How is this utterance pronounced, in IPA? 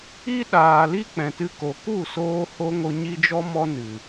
i˦ɗaː˨ li˦k͡pɛ̃˨tɨ˧ko˨ ku˦˨soː˧ho˧ ŋo˧ɲi˦d͡ʒɔ˦ mɔ˦nɨ˨

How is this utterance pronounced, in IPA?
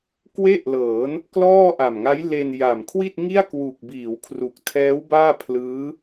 kwe˥˩ʔlɤː˩˦n | klɔː˥˩ʔa˨˩mŋa˦˥jle˧n ja˨˩mkʰwi˥˩t̚ŋi˥˩a̯ kwu˨˩k̚ biː˩˦wkʰru˨˩k̚tʰɛː˦˥w baː˥˩pʰlɯː˦˥

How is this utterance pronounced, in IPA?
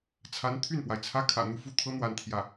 t͡sʰa˧˥nt̪ʰy˥˩npwa˩ɪ̯t͡sʰä˥ kʰä̰˨˩n̪u˥˩fu˥t̪ʰɤ˥ n̪wa˥˧nt̪ʰjä˥˩

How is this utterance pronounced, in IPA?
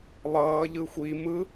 lˠʌː ʎɯxʷi mɯ

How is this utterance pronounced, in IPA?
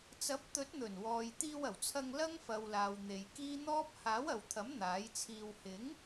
t͡sɐ˨˥p̚t̪ɵ˨˥t̚n̪ɵ˨˩n wɔː˨jt̪iː˧wɐ˨˩wt͡sʰɐ˧ŋ lɐ˥ŋfɐ˨wlaː˨w n̪e˨jkiː˥ n̪ɔː˥p̚ haː˨˥wɐ˨wt̪ʰɐ˨˥m n̪aː˨˥jt͡sʰiː˧w hɪ˨˥ŋ

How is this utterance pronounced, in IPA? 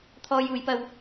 t̪ʰɔː˧juː˨˧jpɐ˧w

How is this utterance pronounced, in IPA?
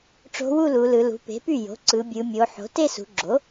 ʈ͡ʂo̤˧˥wu˥˧ lu˩˧lɯ˩˧lṳ˩˥ pe̤˩˥py˥˩jo̤˩˥ ǀɯ˩˧bʲɯ˩˧mʲo˩˧ħo̤˩˥ te˥˧sṳ˩˧ɡ͡ǁo˩˥

